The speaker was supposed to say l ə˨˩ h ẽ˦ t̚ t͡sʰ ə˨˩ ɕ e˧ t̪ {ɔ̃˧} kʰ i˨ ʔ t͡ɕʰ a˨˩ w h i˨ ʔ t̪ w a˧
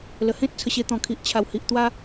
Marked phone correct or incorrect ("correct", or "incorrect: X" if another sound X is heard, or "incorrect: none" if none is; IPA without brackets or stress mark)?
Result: incorrect: ɔ̃˨˩